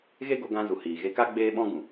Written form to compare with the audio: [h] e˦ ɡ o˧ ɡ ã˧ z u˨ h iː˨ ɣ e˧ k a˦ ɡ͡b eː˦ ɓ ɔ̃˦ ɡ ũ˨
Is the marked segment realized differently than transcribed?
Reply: yes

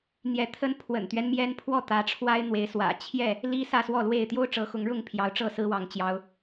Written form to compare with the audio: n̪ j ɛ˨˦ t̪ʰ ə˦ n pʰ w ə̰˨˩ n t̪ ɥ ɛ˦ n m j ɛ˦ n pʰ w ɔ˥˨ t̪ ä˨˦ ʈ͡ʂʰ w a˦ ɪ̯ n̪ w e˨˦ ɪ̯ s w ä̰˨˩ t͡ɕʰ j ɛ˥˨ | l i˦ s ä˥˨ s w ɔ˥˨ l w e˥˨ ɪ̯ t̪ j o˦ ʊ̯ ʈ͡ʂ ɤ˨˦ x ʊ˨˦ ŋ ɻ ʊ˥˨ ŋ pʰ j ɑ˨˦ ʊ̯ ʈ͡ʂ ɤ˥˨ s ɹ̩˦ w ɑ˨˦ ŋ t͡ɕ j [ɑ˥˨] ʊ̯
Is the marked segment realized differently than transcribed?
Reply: yes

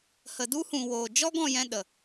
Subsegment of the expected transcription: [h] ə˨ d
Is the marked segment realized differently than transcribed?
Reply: no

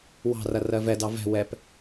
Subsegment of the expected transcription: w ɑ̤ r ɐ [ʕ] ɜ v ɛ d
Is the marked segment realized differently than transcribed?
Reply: yes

